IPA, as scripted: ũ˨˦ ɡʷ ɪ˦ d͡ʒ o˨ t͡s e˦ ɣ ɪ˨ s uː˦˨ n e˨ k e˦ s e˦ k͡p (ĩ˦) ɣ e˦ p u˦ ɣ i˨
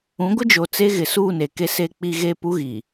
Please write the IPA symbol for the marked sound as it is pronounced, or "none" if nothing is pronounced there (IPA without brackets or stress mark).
i˦